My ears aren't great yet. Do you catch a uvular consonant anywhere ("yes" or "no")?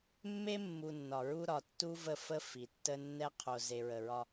yes